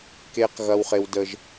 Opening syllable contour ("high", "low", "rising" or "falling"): high